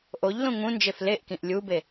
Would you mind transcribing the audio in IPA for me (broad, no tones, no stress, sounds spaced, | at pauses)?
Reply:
ʔ o ʎ l ũ ŋ ũ n d͡ʒ e f l e ʔ k ĩ ʔ lʲ u b e